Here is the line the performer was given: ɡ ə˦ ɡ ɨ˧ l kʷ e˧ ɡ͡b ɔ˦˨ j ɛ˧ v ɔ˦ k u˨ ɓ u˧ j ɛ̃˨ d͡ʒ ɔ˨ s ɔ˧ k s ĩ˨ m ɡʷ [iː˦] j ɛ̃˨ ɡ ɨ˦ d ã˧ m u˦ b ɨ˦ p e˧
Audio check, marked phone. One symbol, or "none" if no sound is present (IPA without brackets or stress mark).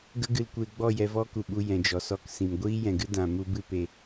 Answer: iː˦